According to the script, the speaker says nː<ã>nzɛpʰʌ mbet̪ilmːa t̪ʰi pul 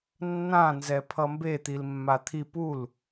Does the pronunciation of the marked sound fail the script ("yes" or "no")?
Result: no